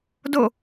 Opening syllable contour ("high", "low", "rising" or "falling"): falling